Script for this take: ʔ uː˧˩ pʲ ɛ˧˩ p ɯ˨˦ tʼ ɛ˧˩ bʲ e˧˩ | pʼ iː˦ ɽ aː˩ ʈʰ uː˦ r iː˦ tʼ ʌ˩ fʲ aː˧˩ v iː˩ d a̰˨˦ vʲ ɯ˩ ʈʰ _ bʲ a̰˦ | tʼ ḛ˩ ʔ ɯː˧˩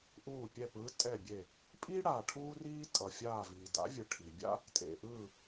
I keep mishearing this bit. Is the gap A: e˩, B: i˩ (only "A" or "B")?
B